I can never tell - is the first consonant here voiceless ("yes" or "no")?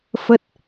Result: yes